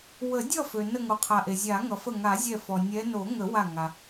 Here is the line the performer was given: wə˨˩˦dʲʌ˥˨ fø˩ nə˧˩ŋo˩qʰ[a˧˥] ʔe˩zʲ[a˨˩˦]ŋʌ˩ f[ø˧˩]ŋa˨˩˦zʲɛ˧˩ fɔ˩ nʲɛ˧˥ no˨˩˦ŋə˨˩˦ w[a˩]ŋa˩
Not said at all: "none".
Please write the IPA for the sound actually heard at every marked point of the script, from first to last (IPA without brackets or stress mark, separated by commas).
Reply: a˩, a˨˩˦, ə˧˩, a˧˩